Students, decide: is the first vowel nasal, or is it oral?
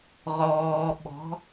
oral